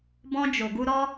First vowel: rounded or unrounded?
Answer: rounded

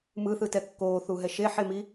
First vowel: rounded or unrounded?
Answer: unrounded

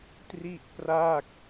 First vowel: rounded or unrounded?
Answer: unrounded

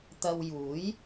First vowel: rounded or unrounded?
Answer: unrounded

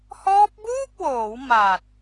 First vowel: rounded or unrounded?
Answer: rounded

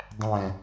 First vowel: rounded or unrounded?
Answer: unrounded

